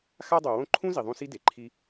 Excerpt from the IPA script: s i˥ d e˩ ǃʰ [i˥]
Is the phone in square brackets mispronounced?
yes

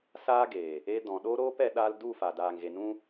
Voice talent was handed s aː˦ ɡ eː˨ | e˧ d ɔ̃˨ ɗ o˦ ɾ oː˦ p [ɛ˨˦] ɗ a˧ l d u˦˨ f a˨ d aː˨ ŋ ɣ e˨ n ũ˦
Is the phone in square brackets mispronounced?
no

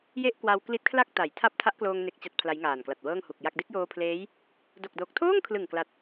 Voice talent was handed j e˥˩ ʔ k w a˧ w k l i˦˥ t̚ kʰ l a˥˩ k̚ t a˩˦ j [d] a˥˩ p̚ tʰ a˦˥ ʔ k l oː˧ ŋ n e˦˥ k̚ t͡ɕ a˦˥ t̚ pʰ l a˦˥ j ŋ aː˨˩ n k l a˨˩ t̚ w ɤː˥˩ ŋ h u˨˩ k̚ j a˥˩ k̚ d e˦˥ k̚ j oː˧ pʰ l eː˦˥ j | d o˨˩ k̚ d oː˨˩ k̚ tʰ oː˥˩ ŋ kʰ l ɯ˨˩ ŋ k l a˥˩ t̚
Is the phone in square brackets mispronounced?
yes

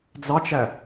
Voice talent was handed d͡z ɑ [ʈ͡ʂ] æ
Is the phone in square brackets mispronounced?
yes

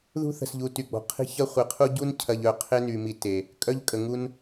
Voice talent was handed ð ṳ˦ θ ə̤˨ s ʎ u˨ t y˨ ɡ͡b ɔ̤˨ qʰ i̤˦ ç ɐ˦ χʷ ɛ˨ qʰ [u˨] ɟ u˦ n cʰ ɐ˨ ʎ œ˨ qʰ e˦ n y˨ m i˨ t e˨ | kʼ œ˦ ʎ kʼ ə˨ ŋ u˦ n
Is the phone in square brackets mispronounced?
yes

